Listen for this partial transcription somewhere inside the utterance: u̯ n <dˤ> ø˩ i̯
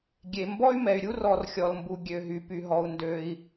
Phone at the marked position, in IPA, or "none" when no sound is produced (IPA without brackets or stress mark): d